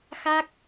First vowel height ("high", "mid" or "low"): low